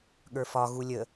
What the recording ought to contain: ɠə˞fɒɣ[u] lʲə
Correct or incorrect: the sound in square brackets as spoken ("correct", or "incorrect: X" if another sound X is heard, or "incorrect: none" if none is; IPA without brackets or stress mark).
correct